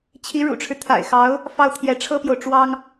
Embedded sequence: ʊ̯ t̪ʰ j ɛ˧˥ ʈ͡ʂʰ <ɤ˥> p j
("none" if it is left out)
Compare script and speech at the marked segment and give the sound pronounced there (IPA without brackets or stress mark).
ɤ˥